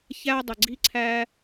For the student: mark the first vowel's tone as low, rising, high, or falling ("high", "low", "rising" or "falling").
high